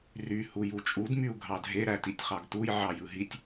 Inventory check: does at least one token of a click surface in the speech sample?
no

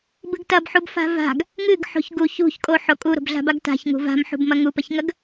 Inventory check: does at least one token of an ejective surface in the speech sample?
yes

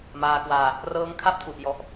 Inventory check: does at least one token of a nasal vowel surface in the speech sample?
no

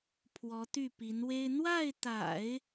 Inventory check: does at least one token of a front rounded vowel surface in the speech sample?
yes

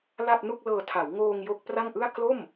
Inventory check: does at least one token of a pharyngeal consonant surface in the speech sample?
no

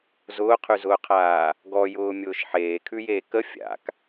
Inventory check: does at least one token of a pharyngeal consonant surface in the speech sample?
yes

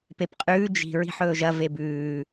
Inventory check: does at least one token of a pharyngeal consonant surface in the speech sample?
yes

